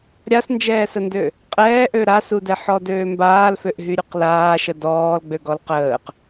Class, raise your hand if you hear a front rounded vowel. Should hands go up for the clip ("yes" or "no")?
yes